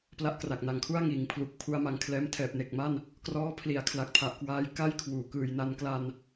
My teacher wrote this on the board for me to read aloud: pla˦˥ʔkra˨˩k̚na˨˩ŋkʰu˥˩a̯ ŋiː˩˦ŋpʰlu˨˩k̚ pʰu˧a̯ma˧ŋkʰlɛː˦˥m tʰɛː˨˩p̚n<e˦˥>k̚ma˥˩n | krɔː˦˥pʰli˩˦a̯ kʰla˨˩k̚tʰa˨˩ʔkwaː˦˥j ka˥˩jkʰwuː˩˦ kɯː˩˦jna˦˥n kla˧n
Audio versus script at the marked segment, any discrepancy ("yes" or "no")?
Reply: yes